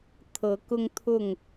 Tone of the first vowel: rising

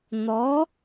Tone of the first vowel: rising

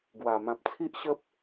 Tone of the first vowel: low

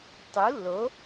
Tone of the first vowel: rising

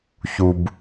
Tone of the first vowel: low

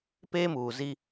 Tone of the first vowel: high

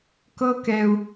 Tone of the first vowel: high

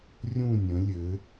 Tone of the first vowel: falling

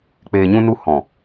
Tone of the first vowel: low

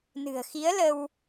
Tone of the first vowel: low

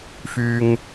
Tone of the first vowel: low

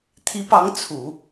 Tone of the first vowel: rising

